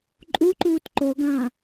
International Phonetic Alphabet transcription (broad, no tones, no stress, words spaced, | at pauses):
ǃʼuǃuːt ǃoɡãː